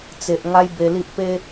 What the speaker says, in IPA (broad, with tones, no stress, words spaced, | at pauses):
t͡se˨ʔ ŋa˦jbe˧li˦ʔ pe˦